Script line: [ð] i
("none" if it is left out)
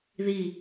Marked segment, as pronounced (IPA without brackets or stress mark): ð